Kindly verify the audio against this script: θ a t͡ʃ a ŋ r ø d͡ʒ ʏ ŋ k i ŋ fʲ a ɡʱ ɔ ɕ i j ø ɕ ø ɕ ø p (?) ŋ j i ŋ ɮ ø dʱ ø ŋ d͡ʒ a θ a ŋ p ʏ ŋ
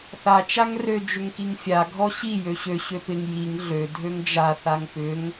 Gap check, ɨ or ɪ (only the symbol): ɪ